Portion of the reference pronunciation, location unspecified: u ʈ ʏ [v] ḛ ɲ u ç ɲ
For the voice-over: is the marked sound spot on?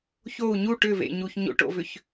yes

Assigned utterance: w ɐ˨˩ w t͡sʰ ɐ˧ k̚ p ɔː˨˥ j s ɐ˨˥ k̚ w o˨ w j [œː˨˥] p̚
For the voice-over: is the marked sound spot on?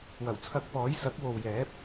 no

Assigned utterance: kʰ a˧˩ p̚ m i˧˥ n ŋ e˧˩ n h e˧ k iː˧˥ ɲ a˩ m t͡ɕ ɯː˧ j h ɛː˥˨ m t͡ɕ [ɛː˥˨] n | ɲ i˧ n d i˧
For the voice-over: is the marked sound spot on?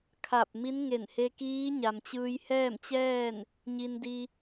yes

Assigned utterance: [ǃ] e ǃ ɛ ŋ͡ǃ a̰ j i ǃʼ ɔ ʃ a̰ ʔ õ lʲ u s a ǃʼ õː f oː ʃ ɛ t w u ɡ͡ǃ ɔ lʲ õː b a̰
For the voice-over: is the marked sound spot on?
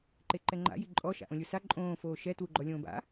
yes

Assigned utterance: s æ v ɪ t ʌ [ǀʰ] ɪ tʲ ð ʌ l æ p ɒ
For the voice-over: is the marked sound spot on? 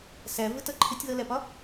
no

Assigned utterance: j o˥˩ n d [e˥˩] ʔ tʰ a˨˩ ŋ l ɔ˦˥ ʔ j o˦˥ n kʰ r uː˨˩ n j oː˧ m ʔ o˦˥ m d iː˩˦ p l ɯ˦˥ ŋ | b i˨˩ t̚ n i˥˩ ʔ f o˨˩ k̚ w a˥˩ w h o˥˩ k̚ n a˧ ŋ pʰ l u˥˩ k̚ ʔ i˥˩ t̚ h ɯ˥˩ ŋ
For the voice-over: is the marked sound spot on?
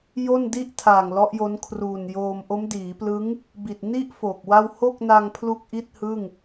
no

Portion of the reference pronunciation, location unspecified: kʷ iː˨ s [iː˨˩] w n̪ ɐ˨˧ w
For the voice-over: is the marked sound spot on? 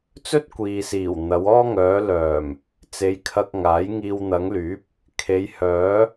yes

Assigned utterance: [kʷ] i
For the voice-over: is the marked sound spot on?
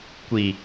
yes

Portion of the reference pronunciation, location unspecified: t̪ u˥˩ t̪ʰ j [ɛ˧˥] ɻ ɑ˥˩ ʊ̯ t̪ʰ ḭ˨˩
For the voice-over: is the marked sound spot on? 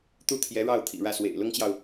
yes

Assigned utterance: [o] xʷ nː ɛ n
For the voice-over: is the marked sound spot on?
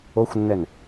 yes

